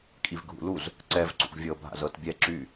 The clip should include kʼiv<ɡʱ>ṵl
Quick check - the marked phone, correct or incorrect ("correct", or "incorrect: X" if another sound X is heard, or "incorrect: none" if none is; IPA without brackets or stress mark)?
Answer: correct